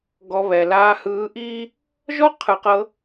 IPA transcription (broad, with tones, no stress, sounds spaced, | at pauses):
ɡ ɔ˧ β ɛ˨ l aː˧ h ɯː˧ ʔ iː˦ | ʒ ɔ˦ qʰ ɯ˨ q ɤ˧